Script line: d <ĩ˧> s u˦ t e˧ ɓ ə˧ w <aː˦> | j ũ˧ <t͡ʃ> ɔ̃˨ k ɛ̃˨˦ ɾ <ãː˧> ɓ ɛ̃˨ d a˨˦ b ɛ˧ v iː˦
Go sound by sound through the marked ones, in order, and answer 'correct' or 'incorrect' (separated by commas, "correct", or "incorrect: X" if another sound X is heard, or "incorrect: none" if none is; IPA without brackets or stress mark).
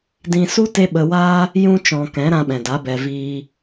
correct, correct, correct, incorrect: ã˧